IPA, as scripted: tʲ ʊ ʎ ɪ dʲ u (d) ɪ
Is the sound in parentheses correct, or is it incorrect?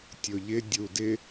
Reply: correct